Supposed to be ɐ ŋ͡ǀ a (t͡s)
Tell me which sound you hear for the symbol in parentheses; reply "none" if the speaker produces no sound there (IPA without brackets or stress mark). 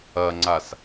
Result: s